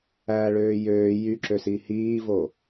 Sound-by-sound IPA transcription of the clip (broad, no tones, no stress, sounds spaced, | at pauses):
æ ɭ øː j øː j y ǁ ø s i h iː v o